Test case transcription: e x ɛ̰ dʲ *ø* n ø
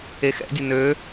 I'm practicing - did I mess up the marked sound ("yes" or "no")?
yes